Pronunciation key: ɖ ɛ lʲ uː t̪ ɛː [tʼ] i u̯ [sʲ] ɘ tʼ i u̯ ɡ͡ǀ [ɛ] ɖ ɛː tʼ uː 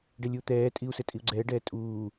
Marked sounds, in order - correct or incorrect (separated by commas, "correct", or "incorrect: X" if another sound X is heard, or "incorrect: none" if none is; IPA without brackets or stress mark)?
correct, incorrect: s, incorrect: ɛː